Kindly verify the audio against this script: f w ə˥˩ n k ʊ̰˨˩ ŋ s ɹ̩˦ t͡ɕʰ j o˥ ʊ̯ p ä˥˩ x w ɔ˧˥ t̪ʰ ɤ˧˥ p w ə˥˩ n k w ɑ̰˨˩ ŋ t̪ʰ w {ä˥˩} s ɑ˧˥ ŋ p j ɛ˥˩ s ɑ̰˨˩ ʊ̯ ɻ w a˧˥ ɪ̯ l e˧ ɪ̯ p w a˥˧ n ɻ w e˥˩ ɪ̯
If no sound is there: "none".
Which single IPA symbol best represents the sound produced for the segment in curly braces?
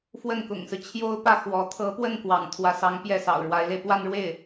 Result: ä˧˥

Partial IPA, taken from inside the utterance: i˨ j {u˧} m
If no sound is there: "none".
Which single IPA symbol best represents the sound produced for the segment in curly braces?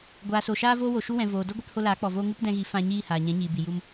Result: u˧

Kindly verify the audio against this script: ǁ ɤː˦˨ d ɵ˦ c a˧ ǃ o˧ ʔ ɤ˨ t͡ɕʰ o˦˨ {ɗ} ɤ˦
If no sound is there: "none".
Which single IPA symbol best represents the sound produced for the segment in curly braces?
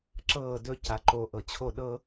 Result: ɗ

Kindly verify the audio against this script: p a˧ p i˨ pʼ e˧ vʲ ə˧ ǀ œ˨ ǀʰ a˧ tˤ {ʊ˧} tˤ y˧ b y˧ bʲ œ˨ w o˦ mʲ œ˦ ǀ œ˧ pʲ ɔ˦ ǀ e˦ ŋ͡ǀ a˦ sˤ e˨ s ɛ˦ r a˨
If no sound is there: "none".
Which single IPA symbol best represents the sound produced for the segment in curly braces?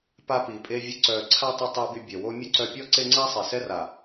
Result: ə˧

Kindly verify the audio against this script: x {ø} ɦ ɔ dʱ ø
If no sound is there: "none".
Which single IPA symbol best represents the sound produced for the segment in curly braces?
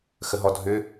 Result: ə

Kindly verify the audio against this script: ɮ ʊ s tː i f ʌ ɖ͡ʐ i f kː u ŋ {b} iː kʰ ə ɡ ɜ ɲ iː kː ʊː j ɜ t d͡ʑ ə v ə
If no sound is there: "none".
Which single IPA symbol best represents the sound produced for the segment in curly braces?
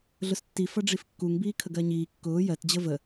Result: b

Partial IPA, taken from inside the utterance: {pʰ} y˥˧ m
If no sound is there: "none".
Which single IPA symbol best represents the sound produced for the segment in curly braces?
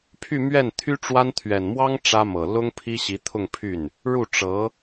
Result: pʰ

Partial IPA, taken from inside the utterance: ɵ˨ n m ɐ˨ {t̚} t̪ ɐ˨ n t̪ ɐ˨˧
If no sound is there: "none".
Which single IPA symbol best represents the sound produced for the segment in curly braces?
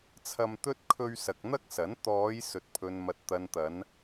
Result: t̚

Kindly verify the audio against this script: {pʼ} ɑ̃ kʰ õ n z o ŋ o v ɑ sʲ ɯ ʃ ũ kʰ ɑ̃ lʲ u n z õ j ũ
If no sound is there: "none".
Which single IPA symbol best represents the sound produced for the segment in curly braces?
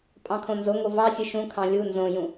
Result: pʼ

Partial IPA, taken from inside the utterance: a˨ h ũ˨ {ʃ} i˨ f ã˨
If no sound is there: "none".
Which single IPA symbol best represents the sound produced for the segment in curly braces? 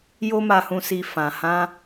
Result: s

